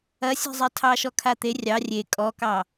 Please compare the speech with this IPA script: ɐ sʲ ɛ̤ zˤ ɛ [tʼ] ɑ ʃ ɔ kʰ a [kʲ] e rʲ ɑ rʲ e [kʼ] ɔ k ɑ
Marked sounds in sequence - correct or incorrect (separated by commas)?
incorrect, incorrect, correct